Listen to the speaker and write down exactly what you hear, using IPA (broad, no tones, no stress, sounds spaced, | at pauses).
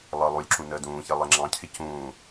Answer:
lˠ əː lˠ u lʲ ǁ ũ n əː d ũː ç e lˠ e ŋ͡ǁ ɑ̃ cʰ ɪ c ũː